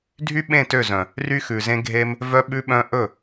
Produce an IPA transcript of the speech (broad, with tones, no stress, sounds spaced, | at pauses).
dʱ y˦ ɓ ẽ˦˨ t ø˦˨ z œ̃˨ | r y˦ x ʉ˨ z ẽ˦ ɡʱ e˦ m | v œ˦ ɓ ʉ˦ ɓ œ̃˦ ʔ ɵ˦˨